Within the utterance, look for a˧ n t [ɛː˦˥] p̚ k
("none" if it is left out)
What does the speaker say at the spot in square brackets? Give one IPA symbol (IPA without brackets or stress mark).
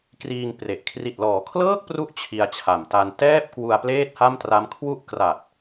ɛː˥˩